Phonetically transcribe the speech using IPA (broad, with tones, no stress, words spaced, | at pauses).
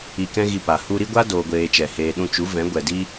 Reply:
i˧kɛ̃˦ɣi˧pa˨ hu˧ɾi˦ɡʷa˦ doː˨ɡʷeː˨ t͡ʃɛ˨heː˧ɗũ˦ t͡ʃu˨˦vɛ̃˨˦ ɡʷɛ˨di˦